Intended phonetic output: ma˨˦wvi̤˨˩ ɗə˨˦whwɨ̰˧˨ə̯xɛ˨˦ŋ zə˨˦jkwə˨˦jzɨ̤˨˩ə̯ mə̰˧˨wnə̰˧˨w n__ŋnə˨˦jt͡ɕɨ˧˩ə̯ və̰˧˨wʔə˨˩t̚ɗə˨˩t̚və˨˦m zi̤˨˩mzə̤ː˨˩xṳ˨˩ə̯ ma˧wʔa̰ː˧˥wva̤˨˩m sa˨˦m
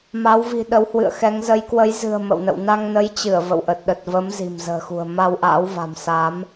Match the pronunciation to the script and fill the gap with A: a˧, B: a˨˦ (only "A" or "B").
A